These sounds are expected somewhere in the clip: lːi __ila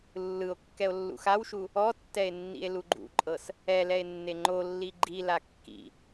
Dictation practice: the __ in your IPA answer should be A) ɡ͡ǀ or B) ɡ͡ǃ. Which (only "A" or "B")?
B